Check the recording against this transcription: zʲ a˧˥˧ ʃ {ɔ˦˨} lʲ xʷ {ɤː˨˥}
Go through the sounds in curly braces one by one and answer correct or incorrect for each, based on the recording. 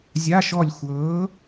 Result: correct, correct

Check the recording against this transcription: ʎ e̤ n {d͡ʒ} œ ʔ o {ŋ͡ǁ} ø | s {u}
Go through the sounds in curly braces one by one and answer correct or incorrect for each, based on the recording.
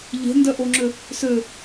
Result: incorrect: d, correct, incorrect: ø

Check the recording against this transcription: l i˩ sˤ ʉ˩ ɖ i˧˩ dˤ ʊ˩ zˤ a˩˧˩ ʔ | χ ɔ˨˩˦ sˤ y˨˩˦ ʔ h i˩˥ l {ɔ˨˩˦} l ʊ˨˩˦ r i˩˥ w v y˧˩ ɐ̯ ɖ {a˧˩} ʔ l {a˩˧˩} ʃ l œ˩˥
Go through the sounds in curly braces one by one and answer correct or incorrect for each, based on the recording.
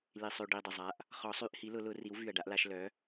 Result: incorrect: ʊ˨˩˦, incorrect: a˥, incorrect: a˩˥

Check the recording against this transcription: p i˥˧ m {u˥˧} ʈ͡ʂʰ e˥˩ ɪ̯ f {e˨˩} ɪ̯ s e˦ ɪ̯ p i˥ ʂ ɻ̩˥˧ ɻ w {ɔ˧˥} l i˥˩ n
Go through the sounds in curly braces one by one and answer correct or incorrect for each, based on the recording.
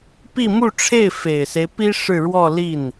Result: correct, correct, incorrect: ɔ˥˧

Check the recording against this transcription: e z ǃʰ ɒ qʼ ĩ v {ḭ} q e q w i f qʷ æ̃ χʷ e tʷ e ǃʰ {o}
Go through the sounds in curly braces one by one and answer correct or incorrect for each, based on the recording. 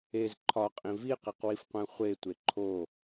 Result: incorrect: i, correct

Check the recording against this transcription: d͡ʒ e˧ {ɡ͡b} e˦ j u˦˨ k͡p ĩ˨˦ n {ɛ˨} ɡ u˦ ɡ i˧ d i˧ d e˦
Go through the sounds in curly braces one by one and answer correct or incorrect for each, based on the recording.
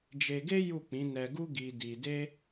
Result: incorrect: ɡ, incorrect: ɛ˧

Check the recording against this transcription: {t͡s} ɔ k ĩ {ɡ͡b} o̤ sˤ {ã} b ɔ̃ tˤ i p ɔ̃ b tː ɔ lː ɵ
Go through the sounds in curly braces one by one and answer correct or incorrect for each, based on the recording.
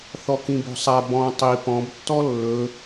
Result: incorrect: θ, incorrect: b, incorrect: a

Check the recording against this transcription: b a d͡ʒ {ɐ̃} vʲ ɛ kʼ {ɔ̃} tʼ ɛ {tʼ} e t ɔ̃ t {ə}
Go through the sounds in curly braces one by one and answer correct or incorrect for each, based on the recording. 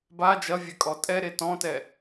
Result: incorrect: ɐ, incorrect: ɔ, incorrect: ɾ, incorrect: ɛ

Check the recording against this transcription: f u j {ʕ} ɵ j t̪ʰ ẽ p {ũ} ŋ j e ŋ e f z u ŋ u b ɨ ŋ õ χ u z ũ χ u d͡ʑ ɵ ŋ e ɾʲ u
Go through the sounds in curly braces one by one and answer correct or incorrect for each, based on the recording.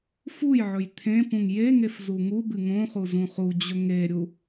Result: correct, correct

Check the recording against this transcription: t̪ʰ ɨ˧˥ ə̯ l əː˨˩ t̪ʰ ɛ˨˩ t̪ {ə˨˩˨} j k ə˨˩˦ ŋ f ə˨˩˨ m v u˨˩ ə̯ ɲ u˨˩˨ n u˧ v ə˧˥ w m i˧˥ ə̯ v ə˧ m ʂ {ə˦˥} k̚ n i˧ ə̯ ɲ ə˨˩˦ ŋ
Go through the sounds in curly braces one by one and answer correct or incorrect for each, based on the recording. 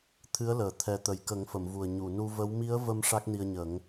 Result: incorrect: ə˨˩, incorrect: a˦˥

